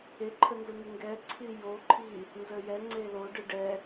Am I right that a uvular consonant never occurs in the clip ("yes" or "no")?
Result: yes